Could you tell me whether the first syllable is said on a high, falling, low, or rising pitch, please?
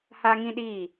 high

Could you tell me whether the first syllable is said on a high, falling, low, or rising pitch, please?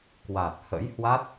low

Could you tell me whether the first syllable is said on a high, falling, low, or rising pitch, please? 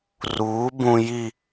rising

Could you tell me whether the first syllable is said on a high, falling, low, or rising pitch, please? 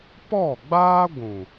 falling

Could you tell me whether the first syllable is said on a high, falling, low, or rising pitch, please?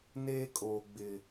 high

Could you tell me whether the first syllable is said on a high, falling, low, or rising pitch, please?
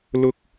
high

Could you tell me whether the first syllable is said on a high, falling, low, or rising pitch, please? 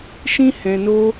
high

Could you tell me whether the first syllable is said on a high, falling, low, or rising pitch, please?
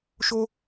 high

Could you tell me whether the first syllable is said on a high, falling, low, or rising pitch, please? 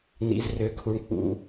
low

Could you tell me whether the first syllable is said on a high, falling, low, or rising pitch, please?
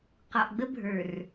low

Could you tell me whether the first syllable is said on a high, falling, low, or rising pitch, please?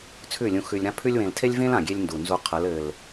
falling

